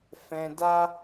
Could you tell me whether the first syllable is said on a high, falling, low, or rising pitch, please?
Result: high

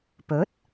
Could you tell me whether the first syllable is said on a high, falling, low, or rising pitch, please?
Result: rising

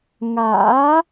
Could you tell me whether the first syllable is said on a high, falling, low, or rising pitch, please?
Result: rising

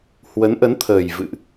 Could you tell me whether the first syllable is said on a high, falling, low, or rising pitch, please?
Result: rising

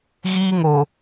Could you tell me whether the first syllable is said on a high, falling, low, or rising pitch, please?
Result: high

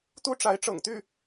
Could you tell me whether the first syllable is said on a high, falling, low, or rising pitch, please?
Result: high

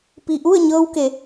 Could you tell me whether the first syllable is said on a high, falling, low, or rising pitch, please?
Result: low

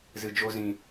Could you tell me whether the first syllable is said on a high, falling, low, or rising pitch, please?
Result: low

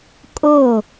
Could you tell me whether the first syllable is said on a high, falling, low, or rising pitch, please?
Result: falling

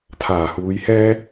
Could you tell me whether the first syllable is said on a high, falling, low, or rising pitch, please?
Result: low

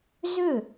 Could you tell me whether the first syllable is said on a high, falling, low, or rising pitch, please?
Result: falling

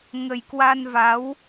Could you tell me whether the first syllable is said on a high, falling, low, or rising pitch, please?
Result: low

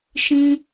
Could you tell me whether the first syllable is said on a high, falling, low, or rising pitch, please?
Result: high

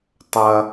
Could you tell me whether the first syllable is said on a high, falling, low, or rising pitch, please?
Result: high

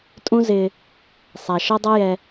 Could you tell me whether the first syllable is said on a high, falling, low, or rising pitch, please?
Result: high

